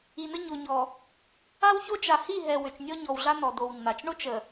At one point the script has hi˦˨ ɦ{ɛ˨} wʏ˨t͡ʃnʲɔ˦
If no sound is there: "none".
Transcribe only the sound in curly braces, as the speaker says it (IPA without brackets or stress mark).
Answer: ɛ˨